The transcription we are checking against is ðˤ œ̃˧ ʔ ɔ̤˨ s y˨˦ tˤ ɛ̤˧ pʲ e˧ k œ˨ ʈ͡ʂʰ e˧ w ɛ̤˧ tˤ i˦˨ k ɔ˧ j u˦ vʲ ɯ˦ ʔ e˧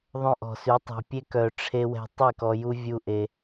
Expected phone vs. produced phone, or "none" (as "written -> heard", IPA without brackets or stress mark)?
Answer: ɯ˦ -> u˦